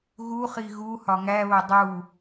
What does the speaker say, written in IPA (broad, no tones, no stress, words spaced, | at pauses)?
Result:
ɣuχi ɣu hɒŋæβo dˤu